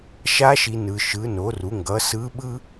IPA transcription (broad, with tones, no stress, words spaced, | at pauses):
ʃa˧˥ʃi˨ nɯ˨ʃɯ˩˥no˩˥ru˩˥ ŋɡʌ˩˥sɯ˧˥ɓɯ˥